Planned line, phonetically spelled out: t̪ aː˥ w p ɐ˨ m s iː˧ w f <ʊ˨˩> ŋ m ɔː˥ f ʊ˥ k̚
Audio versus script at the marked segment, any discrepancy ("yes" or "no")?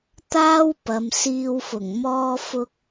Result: no